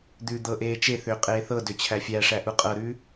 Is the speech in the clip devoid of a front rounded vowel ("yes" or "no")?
no